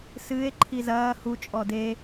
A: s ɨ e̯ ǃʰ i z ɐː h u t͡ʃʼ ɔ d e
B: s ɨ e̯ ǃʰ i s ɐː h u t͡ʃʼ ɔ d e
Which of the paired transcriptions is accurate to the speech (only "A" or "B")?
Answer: A